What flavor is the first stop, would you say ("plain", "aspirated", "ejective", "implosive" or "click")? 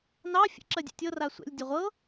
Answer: click